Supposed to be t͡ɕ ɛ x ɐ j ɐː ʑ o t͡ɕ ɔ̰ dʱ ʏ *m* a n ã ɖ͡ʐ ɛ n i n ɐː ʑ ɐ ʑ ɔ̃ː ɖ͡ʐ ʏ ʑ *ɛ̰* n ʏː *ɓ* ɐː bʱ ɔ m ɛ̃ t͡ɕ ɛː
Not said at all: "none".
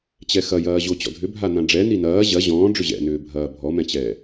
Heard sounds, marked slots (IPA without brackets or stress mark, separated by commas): bʱ, ɛ̰, bʱ